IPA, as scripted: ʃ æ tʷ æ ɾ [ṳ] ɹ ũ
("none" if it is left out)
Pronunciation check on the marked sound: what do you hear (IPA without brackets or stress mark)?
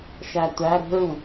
ṳ